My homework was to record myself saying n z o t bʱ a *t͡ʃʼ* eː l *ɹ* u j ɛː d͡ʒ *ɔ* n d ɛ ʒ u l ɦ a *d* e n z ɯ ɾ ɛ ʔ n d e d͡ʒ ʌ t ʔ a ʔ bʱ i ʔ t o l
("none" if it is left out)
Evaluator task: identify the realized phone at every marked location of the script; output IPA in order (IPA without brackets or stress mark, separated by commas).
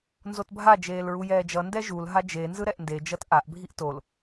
d͡ʒ, ɹ, ʌ, d͡ʒ